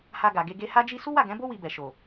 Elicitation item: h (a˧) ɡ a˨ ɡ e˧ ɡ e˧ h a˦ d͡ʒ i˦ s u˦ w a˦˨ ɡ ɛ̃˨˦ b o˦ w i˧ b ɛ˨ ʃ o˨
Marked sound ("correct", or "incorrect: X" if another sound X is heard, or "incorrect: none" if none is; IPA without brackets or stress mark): correct